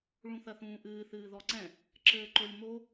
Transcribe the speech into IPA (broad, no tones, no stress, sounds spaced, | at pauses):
ɭ ũ θ ɐ θ ũː ʔ ɨː θ ɨː ð ɔ ǀ ɛ̃ | ǁ ɘː ǃ o lʲ m o